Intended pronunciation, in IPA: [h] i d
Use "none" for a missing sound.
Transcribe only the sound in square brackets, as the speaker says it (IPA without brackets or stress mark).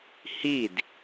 h